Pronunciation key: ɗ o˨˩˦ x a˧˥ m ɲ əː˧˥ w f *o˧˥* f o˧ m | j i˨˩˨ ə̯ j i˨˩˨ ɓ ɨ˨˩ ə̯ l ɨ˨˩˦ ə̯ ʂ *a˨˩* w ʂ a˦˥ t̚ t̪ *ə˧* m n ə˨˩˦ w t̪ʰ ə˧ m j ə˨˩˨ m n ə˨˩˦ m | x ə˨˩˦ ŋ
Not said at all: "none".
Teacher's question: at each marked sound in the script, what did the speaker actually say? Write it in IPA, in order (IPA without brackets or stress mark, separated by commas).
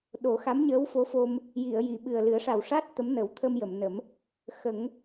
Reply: o˧˥, a˨˩, ə˧˥